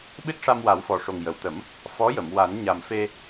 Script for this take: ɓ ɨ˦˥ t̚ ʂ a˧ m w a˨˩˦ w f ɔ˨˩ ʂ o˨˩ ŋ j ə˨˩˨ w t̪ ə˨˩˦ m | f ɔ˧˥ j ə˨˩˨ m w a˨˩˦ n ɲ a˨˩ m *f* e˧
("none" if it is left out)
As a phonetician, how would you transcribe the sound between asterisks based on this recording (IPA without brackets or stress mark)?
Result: f